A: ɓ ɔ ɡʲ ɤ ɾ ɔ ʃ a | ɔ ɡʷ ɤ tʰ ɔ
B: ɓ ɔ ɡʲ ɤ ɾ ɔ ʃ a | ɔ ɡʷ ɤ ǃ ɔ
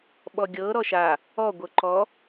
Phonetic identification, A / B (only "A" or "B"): B